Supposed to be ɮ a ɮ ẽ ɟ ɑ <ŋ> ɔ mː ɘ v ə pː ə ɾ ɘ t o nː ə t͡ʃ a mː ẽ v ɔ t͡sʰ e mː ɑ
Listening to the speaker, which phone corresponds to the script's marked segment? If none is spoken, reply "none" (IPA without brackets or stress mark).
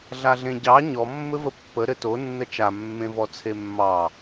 ɲ